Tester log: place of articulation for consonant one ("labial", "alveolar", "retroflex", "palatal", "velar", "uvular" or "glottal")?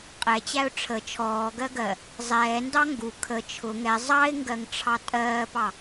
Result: uvular